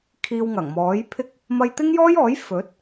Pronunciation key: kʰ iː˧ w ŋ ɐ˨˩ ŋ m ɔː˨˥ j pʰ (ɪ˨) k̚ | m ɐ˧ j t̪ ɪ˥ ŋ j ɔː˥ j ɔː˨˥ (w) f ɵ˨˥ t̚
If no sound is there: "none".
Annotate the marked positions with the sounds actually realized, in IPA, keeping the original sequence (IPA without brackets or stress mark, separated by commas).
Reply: ɪ˥, j